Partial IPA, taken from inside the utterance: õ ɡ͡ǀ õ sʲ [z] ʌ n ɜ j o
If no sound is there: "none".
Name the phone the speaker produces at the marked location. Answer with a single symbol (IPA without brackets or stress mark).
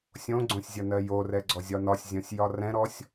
zʲ